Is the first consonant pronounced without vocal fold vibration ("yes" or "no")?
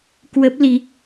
yes